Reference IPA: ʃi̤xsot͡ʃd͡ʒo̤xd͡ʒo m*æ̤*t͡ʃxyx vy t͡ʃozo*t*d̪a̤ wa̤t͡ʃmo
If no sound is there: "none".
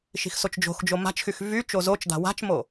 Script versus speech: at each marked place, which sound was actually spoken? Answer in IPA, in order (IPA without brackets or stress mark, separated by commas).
a̤, t͡ʃ